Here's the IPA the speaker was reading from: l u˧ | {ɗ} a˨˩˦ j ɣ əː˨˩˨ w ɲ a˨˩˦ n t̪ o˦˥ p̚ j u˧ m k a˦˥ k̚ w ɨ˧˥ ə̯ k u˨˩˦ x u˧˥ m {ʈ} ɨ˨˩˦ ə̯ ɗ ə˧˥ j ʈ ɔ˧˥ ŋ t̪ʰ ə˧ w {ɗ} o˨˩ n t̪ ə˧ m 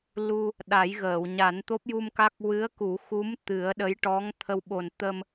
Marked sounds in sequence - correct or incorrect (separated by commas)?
correct, incorrect, incorrect